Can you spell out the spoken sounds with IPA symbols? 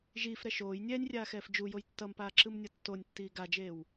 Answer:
ʒ iː f ɾ ɛ ʃ oː j nʲ ɛː nʲ rʲ aː x ɛː f d͡ʒ u j o j tː ʌ m p aː ǁ ɯ m nʲ ʌ tː o nʲ tː iː ɡ a d͡ʒ eː w

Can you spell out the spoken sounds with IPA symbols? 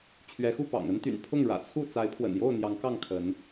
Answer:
t͡ɕʰ ɥ ɛ˨˦ x u˥˨ p ɑ̰˨˩ ŋ ə˦ n t̪ y̰˨˩ n pʰ ʊ˥˨ ŋ ɻ ä̰˨˩ t͡sʰ u˥˨ t͡s a˨˦ ɪ̯ pʰ w ə̰˨˩ n j o˥˨ ʊ̯ n̪ j ɑ˨˦ ŋ k ɑ˥˨ ŋ kʰ ə˨˦ n

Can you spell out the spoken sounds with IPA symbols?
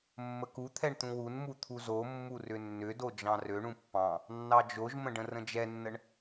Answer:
mː ə k u t̪ʰ ɛ ɳ t̪ ũ w u n m u t̪ʰ u z o mː u r ʏ nː ʏ d o d͡ʒ ɑ̃ r ø ɳ ũ pː ɑ̃ | nː ɑ d͡ʒ o ʒ m ə̃ ɖ ə̃ r ə̃ d͡ʒ ɛ nː ə ɳ

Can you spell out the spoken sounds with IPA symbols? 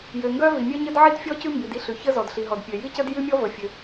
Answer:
j ø˩ ŋ ɡ œ˥ v i˩ mʲ œ˥ ɲ ə˥ d ʕ i˥ d fʲ ɔ˥ c ʉ˥ m b i˩ d i˥ ɬ ʉ˩ ç ə˥ z ɔ˩ d ɬ i˩ ɦ ɔ˩ d pʲ ø˩ j i˥ c ə˥ d j ʉ˥ mʲ ɔ˥ v ə˩ fʲ ø˩

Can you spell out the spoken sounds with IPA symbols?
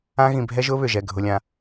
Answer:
ã˦ ɣ ĩ˨ bʱ ɛ˦ ʒ ʊː˦ β ʏ˨ ʒ ɛ˨ ɡʱ ʊ˨ lʲ ã˨

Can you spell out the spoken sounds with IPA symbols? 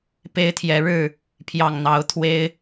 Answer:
p e˦ ɪ̯ t̪ʰ j ɛ˨˦ ɻ ɻ̩˥˨ | pʰ j ɑ˨˩ ŋ n̪ ɑ˨˦ ʊ̯ t̪ʰ w e˨˦ ɪ̯

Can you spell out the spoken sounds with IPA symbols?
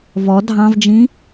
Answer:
v ɔ dʱ ɑ̃ v d͡ʒ ĩ

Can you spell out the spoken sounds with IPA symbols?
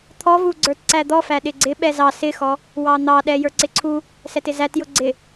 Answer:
t̪ʰ ɔ v u ɡ͡ǀ ə˞ t ǀ æ d̪ ɔ f æ ɗ ɪ ɡ͡ǀ ɪ ɓ ɛ z ɑ s ɪ x ɔ | w ɑ n̪ ɑ ɗ ɛ j ə˞ ǀ ɪ ǀʰ u | s ɛ t ɪ z æ t j ʊ ɡ͡ǀ ɪ

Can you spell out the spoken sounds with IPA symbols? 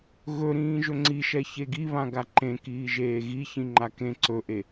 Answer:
ɣ ɵ ɾ ĩː ʒ ɵ ŋ͡ǀ i ʃ ɛ ç e ɡ i β ã ɡ a ǃ ẽ k iː ʒ eː ɣ i ç ĩ ŋ͡ǃ a k ẽ ǀ ɵ ʔ e

